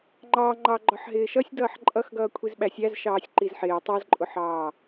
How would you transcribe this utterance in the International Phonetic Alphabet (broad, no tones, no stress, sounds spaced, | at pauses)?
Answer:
ŋ͡ǃ ɑ ŋ͡ǃ ɑ ɡ͡ǃ ɒ ħ ɦ ɪː ʃ ʌ sʲ d ʌː ħ ǃʼ ʌ x ɡ ʌː kʷʰ i z ɓ æ sʲ æ z ʃ ɑː sʲ ǃ i z ħ ɪː tˤ ʌ z ǃʼ ʊ ħ ɑː